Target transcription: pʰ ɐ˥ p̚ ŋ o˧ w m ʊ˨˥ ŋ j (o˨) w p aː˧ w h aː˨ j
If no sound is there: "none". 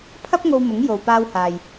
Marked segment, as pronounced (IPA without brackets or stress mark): o˨